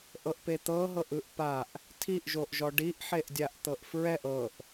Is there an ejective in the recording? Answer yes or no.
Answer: no